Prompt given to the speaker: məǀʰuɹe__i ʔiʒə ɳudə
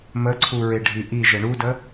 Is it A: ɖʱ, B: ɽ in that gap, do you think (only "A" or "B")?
A